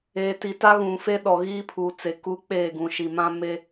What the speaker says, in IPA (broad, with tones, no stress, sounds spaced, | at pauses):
eː˨ t i˨ t a˦ ɣ ũ˨ f e˦ ɗ ɔ˨ ɣ iː˦ pʰ uː˨ t͡s e˨ k uː˦ k͡p e˦˨ ɡ ũ˨ ʃ i˨ m ã˦ m e˦